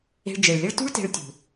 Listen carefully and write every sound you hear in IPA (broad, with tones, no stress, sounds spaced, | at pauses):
e̤˧ ɭ d͡ʒ e˨ ɭ lʲ ɘ˦ ɭ t ṳ˦ ɭ t e̤˧ ɭ tʲ ṳ˨